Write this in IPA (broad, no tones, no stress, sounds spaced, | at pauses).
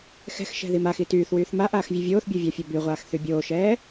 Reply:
x ɛ̤ x ʃ ɛ̤ ð i m a x i t yː θ w yː θ m a ʔ aː x vʲ ɛ vʲ oː θ bʲ o vʲ a fʲ o b y ʁʷ aː x θ y bʲ oː ʃ ɛː